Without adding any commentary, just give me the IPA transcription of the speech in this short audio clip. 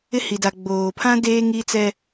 ɪ˦ h i˨ d a˨ ɡ͡b oː˨ pʰ ã˦ d eː˦ ŋ i˦ t͡s ɛ˦

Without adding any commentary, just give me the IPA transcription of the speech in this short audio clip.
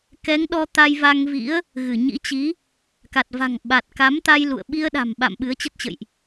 k ɛ˨˦ ŋ ɗ ɔ˧ t̪ a˧ j v a˧ ŋ v ḭ˧˥ ə̯ | ɣ ɨ˧˩ ɲ ḭ˧˥ t͡ɕ i˨˦ | k a˨˩ t̚ v a̤˨˩ ŋ ɓ a˨˩ t̚ k a˨˦ m t̪ a˧ j l ṵ˧˨ ə̯ ɓ i˧ ə̯ ɗ a̤˨˩ m ɓ a̰˧˨ m ɓ ɨ˨˦ ə̯ t͡ɕ ə˦˥ t̚ t͡ɕ ə̰˧˨ j ʔ

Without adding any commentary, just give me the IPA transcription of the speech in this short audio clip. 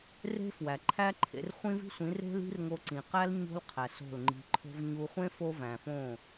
r e̤˦ f w æ˨ ǃʰ æ˦ ǃʰ ḛ˧ r χʷ ĩ˦ v i̤˦ sʷ ĩ˨˦ r e̤˦ l i̤˦ r ŋ o˧ ǀ ĩ˨ q æ˦ l ɲ o̤˦ l qʰ æ˨ s o̤˦˨ l ŋ͡ǃ i̤˧ ǃʰ o̤˦ v ɲ u˧ χʷ ẽ˦ f o˦ v æ̃˨ f õ˦˨

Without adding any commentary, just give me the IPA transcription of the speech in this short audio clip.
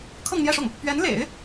kʰ ɤ˥˧ ŋ n̪ j ɛ˥˧ ʂ ʊ˥˩ ŋ | p ɥ ɛ˧˥ n l ḛ˨˩˦ ɪ̯

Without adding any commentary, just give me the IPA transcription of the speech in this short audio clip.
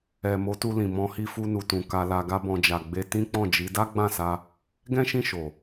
ɛ˨ m o˨˦ t u˧ l ĩ˨ m ɔ̃˧ h i˧ f u˧ n u˨ t ũ˨ k a˧ l a˧ ɡ a˦ b ɔ̃˧ d͡ʒ a˨ ɡ͡b e˧ t ĩ˦ k͡p ɔ̃˦˨ d͡ʒ i˨˦ d a˦ ɡ͡b ã˦˨ s a˧ | ɡ ɛ̃˦ ʃ ĩ˦˨ ʃ o˨

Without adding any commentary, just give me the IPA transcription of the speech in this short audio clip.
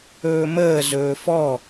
ɵː m əː z ɵː f ɔ

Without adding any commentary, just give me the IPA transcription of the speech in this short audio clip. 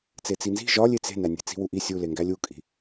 t͡s e t͡s i n z i̤ ʒ ɒ lʲ e t͡s e̤ n æ nʲ e̤ t͡s i̤ w u ʔ i sʲ u l e ŋ ɡ æ lʲ u kʼ i̤

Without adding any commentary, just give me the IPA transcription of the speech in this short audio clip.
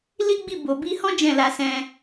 l i˦ ɡ͡b i˦˨ b o˨ b i˧ h ɔ̃˦ d͡ʒ ɛ̃˦˨ l a˧ s ɛ̃˧

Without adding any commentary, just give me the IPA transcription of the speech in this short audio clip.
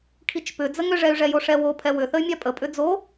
kʰ i t͡ʃ p ʏ d͡z ə ŋ ʏ ʐ ɛ y̯ ʐ ɛ j o ʂ ɛ w o pʰ ɛ w ʏ θ ə y̯ mʲ a pʼ ə pʼ ʏ d͡z o

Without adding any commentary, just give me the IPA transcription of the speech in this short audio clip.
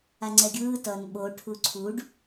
a ŋ͡ǀ ɛ ɡʲ ɯː t ʌ n ɓ o ʈʰ u ǀʰ u ɖ

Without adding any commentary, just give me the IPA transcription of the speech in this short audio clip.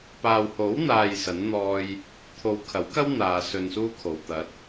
p aː˨ w h o˨˥ w n̪ aː˨ j s ɐ˨˥ n n̪ ɔː˧ j | t̪ʰ o˨ w kʰ ɐ˨˥ w k ɐ˥ w n̪ aː˧ s ɵ˧ n s uː˥ kʰ o˨ w t̪ ɐ˨˥ t̚

